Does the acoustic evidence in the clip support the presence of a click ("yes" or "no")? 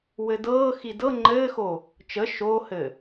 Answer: yes